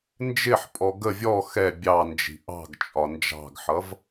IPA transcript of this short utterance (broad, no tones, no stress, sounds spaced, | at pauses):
n d͡ʒ ɪ ħ pʼ ɔ ɡ ə vʲ ɔ x ɛ bʲ ɑ n d͡ʒ i̤ ʔ ɑ̤ ɡ t͡ʃʼ ɒ n d͡ʒ ɑ̤ ɡ ħ ʌ v